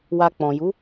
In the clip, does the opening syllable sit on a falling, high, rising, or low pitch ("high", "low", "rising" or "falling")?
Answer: low